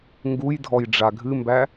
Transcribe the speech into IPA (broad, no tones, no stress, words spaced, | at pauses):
ŋɡujdʱɔj ɖ͡ʐaɡʱɨmbæ